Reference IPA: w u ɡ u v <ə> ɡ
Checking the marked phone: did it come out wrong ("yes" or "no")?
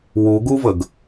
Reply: no